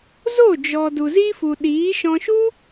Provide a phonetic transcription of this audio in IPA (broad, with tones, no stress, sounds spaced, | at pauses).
z o˦˨ d͡ʒ ɔ˨ d u˨ z i˦ f u˨ ɗ iː˨˦ ʃ ɔ̃˧ ʃ u˦